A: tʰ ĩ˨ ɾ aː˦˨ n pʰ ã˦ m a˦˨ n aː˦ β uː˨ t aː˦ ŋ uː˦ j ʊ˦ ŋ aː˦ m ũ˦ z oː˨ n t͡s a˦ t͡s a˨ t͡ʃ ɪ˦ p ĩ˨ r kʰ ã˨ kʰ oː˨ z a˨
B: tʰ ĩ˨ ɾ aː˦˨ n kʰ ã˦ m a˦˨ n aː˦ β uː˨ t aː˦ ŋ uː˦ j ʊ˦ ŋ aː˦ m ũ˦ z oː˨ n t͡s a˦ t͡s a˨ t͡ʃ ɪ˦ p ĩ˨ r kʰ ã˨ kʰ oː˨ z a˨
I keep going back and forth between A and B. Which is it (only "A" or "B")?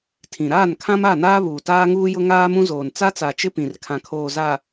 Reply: B